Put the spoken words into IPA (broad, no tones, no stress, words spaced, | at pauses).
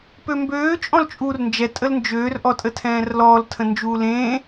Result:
pømbøː t͡ʃʼɔ̃lt͡ʃʼuːrnd͡ʒɛ tʼəlnd͡ʒøːr ʔɔtʼətʰɛ̃ːrlɔːl tʰə̃nd͡ʒuːlẽː